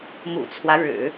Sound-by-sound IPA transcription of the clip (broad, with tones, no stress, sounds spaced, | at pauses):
m ṵ˨˩ t͡sʰ w ä˦ ɻ ɻ̩˨˩˦